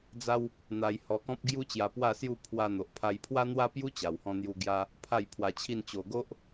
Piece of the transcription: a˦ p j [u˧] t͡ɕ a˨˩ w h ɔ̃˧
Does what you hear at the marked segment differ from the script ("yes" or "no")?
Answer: yes